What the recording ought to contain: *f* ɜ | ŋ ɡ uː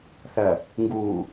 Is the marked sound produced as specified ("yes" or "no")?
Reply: no